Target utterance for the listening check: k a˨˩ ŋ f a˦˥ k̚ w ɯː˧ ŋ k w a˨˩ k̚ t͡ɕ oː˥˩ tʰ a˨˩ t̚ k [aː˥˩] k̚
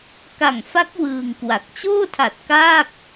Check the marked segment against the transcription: correct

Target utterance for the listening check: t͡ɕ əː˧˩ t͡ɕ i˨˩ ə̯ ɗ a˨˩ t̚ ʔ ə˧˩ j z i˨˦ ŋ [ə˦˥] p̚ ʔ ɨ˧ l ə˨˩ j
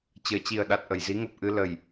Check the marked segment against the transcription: incorrect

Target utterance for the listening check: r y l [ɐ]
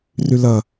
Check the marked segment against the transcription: correct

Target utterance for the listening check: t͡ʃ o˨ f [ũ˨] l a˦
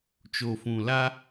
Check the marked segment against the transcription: correct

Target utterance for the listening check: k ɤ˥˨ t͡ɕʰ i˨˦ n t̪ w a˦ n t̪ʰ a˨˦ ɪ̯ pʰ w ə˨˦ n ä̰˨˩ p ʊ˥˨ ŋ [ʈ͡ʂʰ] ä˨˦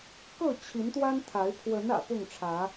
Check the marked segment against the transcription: correct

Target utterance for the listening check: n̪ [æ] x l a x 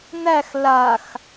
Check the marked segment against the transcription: correct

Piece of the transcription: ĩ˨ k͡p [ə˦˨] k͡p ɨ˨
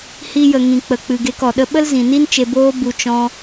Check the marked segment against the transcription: incorrect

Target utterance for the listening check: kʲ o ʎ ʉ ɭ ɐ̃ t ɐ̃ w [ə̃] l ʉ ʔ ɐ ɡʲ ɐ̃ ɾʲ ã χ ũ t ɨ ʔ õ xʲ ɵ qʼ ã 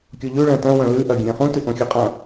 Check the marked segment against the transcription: incorrect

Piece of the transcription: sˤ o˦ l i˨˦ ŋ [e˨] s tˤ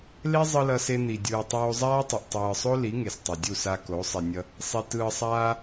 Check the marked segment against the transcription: correct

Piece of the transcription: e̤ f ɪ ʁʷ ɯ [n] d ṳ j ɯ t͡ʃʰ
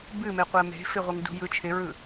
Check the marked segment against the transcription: incorrect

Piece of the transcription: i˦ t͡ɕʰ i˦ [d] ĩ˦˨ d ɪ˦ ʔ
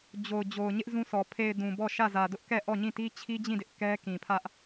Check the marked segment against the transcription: incorrect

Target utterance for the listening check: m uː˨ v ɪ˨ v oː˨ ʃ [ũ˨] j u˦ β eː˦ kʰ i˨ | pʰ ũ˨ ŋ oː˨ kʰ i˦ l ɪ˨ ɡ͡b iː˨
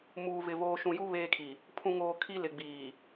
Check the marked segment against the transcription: correct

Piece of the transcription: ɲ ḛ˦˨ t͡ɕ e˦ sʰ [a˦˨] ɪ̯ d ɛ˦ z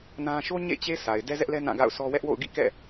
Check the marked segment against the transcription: incorrect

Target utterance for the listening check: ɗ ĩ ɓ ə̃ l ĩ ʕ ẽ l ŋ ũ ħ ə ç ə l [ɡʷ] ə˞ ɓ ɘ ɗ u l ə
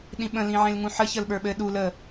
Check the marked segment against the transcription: incorrect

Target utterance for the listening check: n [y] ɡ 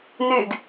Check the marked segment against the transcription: correct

